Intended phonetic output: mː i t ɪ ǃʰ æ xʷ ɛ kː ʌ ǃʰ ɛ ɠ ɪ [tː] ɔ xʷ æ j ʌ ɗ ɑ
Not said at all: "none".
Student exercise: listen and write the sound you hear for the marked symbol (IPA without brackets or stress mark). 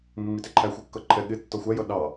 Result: tː